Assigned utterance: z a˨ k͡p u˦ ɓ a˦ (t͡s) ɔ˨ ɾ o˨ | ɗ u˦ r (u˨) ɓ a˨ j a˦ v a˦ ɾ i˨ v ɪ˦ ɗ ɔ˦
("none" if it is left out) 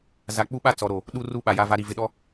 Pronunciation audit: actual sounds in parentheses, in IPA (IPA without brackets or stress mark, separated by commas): t͡s, u˦